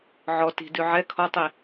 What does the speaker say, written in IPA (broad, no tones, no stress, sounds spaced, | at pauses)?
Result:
ʕ ɔ t i̤ d ʉ ʕ ɛ kʰ ɔ tˤ i